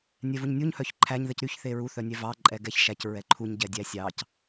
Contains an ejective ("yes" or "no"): yes